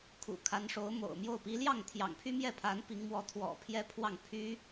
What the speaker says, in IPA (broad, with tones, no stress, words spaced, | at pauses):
kʰṵ˨˩kʰa˧˥nʂo˧˥ʊ̯ mo̰˨˩ʊ̯mjo˥˩ʊ̯ pi˧˥ljɑ˥˩ŋ t̪ʰjɑ̰˨˩ŋpʰy˥mjɛ˥˩pʰa˧˥n pi˧˥ŋ mwɔ˧˥ t̪ʰwɔ̰˨˩ pʰjɛ˥pʰwɑ˥˩ŋ pʰy˥